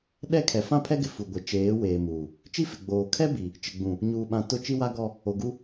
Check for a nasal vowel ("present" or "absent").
present